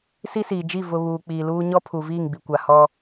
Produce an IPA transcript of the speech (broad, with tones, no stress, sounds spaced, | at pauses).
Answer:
s i˦ s iː˨ d͡ʒ i˦˨ v ʊ˨ β uː˨ k͡p iː˨ l uː˦ ɲ ɔ˦ pʰ u˨ v iː˦˨ ŋ ɡ͡b i˨ kʷ a˨ h ɔ˦